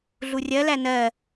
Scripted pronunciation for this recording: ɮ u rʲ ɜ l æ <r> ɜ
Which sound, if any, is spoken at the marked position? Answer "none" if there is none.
n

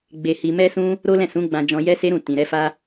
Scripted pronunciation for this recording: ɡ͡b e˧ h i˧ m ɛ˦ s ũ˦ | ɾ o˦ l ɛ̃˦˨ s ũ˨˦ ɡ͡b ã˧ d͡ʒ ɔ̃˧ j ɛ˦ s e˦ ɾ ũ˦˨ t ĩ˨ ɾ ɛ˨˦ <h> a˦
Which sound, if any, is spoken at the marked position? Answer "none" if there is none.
f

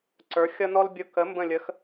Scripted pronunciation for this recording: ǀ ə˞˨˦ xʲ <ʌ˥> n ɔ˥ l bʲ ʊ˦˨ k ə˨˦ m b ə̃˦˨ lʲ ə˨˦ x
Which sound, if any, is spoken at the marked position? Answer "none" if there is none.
ʌ˥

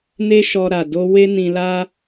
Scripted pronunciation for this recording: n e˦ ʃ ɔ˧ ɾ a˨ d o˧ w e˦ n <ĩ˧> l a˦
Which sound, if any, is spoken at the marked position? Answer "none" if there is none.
ĩ˧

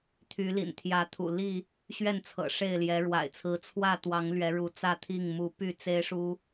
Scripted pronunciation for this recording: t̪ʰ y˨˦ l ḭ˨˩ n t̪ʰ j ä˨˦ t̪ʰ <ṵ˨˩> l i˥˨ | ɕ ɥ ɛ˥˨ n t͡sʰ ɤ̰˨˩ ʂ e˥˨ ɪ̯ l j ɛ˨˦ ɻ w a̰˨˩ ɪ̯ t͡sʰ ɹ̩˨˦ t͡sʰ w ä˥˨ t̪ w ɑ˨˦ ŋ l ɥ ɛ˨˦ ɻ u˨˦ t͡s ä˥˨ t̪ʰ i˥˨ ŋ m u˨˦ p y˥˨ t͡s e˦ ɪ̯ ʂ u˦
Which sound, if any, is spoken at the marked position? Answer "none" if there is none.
ṵ˨˩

